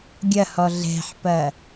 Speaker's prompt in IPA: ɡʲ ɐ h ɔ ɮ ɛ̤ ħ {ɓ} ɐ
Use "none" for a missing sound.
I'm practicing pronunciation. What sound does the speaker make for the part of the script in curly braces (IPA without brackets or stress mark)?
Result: p